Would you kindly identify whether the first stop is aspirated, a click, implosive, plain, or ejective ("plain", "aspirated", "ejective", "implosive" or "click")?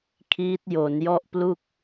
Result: aspirated